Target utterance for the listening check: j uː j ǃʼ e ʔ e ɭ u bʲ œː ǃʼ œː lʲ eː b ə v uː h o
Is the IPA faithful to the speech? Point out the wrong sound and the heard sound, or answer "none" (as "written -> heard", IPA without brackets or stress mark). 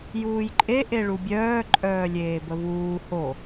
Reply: none